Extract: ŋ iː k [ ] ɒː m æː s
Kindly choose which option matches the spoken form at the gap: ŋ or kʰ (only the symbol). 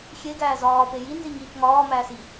ŋ